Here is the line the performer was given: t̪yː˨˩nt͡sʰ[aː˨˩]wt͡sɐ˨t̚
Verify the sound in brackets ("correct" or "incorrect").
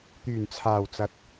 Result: correct